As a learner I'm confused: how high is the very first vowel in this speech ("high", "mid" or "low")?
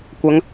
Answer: low